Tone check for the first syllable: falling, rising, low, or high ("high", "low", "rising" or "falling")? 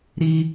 high